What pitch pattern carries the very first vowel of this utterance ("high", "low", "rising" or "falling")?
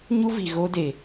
high